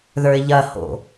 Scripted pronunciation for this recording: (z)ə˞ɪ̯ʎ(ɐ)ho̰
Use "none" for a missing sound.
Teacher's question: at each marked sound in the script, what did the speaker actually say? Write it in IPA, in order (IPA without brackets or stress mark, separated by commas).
ð, ɐ